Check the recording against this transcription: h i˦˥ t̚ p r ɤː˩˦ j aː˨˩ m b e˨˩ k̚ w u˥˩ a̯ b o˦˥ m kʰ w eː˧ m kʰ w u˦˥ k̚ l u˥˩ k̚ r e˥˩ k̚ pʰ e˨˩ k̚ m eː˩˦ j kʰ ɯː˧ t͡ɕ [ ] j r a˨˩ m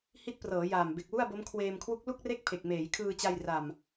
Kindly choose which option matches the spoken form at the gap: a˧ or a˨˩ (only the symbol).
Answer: a˧